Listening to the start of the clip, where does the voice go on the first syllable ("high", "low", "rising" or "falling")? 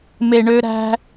low